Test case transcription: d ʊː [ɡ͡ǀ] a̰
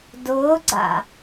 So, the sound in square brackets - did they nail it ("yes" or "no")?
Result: yes